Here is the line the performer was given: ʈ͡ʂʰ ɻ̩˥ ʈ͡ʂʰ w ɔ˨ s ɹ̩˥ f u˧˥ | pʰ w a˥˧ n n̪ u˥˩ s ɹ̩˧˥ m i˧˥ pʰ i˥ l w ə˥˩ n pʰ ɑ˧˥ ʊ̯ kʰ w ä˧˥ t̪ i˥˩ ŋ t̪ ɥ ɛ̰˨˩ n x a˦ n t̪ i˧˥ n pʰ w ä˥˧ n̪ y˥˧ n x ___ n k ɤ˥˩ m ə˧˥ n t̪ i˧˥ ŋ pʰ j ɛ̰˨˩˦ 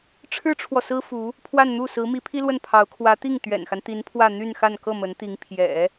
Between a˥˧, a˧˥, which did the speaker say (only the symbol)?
a˥˧